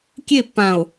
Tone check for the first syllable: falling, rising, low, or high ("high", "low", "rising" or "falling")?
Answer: falling